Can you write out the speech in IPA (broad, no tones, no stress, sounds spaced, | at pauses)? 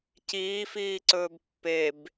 c iː f iː ǀ ɵː b pː e b